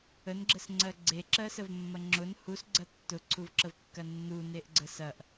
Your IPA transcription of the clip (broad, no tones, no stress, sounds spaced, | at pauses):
ə n ɡ͡ǁ ə s ŋ͡ǀ ɜ ɡ͡ǀ e ǁ ɜ s ə v mː ɐ ŋ͡ǁ ʊ n h u s ɡ͡ǀ ɐ tː ʊ ǀʰ u v ǁ ə v kː ɐ nː u n e ʔ ɡ͡ǀ ə s ɐ ʔ